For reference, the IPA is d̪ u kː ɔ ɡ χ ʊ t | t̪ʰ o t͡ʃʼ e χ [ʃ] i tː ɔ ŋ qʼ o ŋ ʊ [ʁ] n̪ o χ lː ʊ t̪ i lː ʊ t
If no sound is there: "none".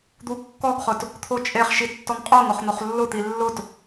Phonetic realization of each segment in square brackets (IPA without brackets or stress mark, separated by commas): ʃ, χ